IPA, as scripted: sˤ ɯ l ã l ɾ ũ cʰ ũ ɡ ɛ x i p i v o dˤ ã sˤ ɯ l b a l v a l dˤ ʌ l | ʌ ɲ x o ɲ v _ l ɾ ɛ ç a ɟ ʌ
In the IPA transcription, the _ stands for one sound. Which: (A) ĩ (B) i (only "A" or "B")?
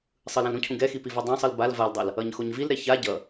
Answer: B